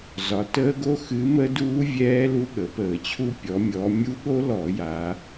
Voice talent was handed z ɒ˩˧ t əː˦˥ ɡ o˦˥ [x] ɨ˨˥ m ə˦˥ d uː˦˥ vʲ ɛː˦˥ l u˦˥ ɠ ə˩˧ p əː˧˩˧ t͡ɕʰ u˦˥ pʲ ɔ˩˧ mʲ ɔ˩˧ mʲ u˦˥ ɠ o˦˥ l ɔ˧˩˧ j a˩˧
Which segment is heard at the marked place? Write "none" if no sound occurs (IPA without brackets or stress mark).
x